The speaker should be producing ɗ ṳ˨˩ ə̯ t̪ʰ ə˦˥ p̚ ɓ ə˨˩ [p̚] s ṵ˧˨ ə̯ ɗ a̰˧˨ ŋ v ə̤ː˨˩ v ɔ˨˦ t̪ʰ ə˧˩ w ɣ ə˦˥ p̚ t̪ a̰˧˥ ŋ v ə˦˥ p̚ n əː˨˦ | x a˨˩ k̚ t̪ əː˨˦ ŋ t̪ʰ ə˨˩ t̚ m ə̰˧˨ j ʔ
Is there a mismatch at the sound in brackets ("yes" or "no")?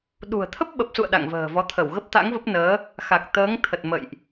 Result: no